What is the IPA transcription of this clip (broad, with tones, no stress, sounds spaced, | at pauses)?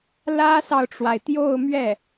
l ä˥ s ɑ˨ ʊ̯ ʈ͡ʂ w a˩ ɪ̯ t̪ j o˥˧ ʊ̯ m ɥ ɛ˥˩